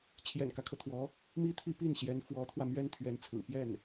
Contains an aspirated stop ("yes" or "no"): yes